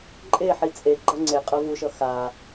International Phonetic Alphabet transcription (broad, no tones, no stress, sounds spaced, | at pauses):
ǃʼ e ħ i t͡sʼ e ɡ͡ǃ ʌ ŋ͡ǀ e qʼ ʌ v u ʃ ʌ x a